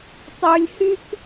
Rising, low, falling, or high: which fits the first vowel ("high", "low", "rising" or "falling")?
low